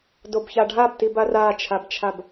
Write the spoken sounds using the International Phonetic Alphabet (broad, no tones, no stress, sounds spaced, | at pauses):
d o b ç a ɖʱ a b t i b a r a t͡ʃʰ a b t͡ʃʰ a b